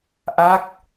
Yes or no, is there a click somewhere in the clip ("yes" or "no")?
no